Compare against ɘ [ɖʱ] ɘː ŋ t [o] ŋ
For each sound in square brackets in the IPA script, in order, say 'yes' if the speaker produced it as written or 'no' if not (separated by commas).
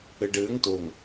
no, yes